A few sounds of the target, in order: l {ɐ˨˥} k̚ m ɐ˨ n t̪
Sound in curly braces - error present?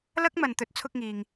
yes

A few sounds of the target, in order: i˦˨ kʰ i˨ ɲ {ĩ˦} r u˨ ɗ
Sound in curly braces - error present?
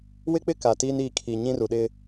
no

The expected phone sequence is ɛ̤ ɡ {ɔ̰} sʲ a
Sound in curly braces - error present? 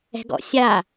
no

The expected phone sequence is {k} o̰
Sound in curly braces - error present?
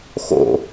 yes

